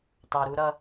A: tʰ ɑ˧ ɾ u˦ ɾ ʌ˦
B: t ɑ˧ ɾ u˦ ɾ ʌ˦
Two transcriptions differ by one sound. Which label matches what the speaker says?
B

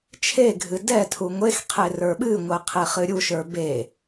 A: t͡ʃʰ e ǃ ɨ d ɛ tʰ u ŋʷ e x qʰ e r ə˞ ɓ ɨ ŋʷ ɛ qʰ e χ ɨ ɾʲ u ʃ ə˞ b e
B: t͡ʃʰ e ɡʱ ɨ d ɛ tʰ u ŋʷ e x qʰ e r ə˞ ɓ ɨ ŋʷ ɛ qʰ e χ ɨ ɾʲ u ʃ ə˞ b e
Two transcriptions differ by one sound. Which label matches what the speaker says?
B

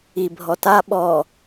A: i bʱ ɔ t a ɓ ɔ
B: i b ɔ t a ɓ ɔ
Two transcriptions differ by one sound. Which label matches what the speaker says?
A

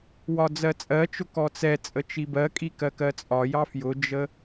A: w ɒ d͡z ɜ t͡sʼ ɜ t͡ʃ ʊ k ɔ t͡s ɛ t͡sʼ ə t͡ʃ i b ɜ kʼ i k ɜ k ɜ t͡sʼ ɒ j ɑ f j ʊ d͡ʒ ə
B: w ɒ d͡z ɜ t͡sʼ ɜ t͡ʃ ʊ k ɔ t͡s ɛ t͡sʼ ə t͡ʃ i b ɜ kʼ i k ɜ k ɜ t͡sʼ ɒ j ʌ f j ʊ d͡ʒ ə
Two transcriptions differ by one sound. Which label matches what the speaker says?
A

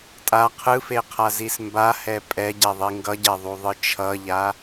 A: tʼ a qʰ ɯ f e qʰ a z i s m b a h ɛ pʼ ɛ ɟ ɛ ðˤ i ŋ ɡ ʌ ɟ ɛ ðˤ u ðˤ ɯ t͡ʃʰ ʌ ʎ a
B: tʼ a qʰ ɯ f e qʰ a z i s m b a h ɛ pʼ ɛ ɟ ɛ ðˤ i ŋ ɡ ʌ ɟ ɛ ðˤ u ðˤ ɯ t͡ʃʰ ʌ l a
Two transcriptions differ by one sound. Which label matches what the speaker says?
A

